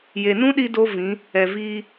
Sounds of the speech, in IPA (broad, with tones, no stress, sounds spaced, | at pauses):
j e˨ n ũ˦ ɗ i˧ d o˦ v ĩ˨˦ | ɛ˨ v iː˧